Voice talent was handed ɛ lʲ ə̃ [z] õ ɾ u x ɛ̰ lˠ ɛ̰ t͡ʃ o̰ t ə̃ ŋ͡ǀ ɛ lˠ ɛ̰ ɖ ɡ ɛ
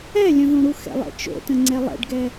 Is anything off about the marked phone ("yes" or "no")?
yes